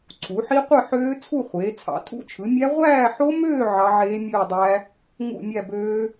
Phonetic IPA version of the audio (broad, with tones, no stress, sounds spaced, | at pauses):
ǀʰ u˩˧ ħ i˦˥ qʷ ɯ˥˧ ħ øː˦˥ t͡sʰ u˥˧ χʷ eː˩˧ t͡sʰ ɑ̰˩˧ tʰ ṵ˦˥ t͡ʃʰ ɯ˩˧ mʲ æ˦˥ ʁʷ æː˥˧ ħ o˦˥ m øː˥˧ ʕ ɑ˦˥ ʕ eː˦˥ mʲ ɯː˥˧ dˤ æ˦˥ | ŋ ṵ˥˧ mʲ æ˥˧ b øː˦˥